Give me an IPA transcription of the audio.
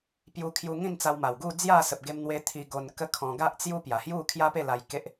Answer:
p j u˧ kʰ j u˧ ŋ ĩ˥˧ n t͡s a˧ w m a˨˩ w ɡ u˥˧ d͡z j a˥˧ s ə˨ p̚ ɡ e˧ m n̪ w e˧ t̪ʰ i˧ ɡ o˧ n k ə˦ kʰ ɔ̃˧ ɡ a˦ ʔ t͡s j u˦ p j a˨˩ h j u˥˧ kʰ j a˦ p e˥˧ l a˧ j k e˦ ʔ

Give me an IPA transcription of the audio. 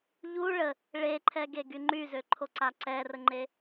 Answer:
ʎ u ɭ ə | ɭ e ǃʰ ɛ ɡ e ɡ y ŋ͡ǃ y z ø ǃʰ o ǀ a ǀ ɛ r ə ŋ͡ǃ e

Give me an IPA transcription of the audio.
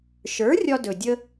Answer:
ʃ ə˞˩˥ rʲ ɒ˥ d ɵ˨˩ dʲ ə˥

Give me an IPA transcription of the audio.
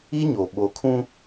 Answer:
i˦ ɲ o˨ ɓ o˨ kʰ ũ˦

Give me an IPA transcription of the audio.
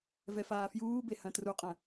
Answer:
v ɛ f aː f j uː b e h ɐ̃ t r u qʼ ɐ̃

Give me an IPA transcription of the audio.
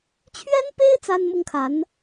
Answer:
t͡ɕʰ ɥ ɛ˥ n p e˥ ɪ̯ t͡s a˥ n m ʊ˥ ŋ kʰ a˧˥ n

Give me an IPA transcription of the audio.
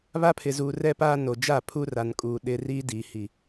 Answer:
β a˦ pʰ ɪ˨ z uː˨ r ɛ˦ p aː˦ n o˨ d͡ʒ a˦˨ pʰ u˦ r a˨ n kʼ uː˨ ɗ ɪ˦ r i˦ d iː˨ h i˨

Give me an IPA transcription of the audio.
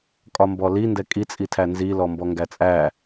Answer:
kʼ ɒ m b ɔ l i n d ɛ kʼ i t͡sʼ i tʰ æ n z i l ɔ m b ɔ ŋ ɡ æ t͡sʼ æ

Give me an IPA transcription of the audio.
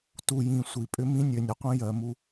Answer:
t u˨ j ĩ˨ sʷ i˨ pʼ ʏ˦ m ĩ˦ nʲ ø˨ nʲ ə˨ qʷ ĩ˦ j ɜ˨ m u˦

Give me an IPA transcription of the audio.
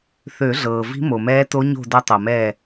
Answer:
θ ø˨˩˦ ɮ ɤː˩ v i̤˧˥ m o˩ m ɛː˧˥ t o˧˥ ɲ o̤˦˨ d ɐ˧˥ tˤ ɤ˩ m ɛː˦˨

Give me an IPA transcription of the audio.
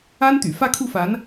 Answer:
a˥ n t̪ y̰˨˩ f ä˥˧ kʰ u˥˩ f a˧˥ n

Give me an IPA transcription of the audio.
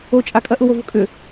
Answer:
o t͡ʃʼ a kʼ ɐ ʔ ʊ w o v ʊ kʼ ʏ

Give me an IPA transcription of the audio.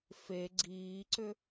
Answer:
f e ɡ͡ǀ iː ǀ ʏ

